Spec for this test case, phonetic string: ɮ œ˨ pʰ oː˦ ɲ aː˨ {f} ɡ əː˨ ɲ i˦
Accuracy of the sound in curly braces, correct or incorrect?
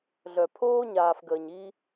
correct